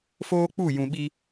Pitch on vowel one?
high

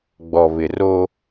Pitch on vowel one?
low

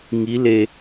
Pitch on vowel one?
rising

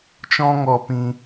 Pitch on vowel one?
high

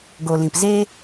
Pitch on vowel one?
low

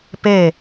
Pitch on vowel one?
falling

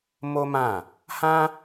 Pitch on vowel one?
high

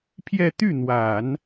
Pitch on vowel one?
falling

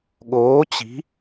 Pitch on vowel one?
rising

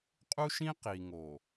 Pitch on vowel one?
high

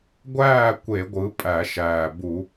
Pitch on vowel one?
falling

